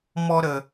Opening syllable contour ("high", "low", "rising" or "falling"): high